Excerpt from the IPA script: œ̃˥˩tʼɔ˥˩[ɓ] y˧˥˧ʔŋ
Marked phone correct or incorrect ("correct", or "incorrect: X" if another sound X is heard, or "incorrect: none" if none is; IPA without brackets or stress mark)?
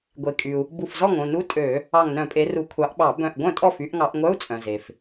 incorrect: f